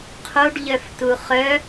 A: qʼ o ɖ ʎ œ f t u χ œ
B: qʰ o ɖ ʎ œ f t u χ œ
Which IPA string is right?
B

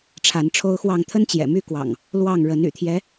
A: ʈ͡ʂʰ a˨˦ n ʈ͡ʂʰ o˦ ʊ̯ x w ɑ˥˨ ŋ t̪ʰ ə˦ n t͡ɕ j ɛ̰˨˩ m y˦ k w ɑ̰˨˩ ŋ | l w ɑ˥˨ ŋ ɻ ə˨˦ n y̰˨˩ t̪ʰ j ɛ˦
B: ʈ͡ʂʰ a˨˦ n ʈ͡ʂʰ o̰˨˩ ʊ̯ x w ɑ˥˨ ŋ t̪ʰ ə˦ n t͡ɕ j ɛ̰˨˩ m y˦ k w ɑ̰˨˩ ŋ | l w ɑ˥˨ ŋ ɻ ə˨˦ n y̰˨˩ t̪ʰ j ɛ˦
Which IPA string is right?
A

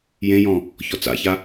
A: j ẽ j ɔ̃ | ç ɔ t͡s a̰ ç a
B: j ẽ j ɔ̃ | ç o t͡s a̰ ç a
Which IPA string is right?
A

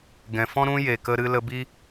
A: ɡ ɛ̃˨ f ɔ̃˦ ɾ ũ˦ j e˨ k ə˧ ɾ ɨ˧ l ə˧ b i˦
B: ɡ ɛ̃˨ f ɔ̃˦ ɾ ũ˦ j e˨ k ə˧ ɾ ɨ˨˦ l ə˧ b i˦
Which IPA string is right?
A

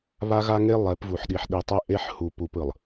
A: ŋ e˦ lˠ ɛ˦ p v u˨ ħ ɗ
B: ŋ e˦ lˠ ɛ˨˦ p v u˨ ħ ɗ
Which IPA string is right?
B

